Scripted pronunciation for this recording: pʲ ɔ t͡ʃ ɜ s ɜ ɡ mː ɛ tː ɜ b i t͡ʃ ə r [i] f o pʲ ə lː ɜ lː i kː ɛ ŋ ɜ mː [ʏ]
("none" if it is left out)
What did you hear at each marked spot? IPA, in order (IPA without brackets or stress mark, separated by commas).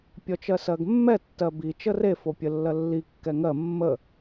e, ə